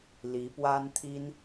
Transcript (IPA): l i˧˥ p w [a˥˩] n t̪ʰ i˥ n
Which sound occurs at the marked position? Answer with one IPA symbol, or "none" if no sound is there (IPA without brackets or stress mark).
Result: a˥